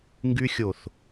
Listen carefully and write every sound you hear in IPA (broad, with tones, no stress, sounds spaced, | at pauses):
ŋ ɡ y˧ xʲ o˨ θ